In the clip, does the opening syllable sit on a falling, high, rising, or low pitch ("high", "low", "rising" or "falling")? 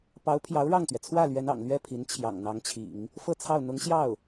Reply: rising